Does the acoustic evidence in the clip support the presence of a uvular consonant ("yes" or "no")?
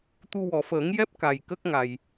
no